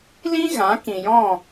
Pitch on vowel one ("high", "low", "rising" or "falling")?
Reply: high